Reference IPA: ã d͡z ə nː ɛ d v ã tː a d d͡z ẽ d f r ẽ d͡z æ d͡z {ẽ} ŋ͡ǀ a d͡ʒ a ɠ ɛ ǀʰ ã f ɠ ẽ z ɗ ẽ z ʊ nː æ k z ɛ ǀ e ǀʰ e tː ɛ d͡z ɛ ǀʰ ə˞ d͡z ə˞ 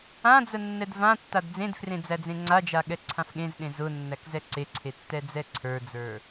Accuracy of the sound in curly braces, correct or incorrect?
correct